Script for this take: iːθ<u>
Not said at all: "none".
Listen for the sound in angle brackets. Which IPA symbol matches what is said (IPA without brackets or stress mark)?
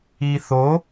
o